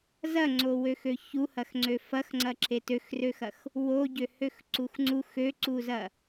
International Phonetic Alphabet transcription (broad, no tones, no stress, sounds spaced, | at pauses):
z ɐ ŋ͡ǀ o w ø x ø ç u h ɐ x ŋ͡ǀ ø f ɐ x ŋ͡ǀ ɐ ǁ e t ø x r ø x ɐ x | w o ɟ ø h ø x ǀ u x ŋ͡ǀ u x ø ǀ u z ɐ